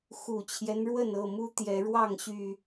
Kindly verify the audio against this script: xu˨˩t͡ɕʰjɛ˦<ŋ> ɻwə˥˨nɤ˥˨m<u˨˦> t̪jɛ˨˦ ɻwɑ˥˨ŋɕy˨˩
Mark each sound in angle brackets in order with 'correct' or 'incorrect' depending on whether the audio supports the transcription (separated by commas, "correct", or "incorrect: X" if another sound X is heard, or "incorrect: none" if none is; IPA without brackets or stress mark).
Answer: incorrect: n, incorrect: u˦